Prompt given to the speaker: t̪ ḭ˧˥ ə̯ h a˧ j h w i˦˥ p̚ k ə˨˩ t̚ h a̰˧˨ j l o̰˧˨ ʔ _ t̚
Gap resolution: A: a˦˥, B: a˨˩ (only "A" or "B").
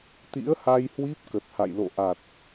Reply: B